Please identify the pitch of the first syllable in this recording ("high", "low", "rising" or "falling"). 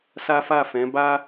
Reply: high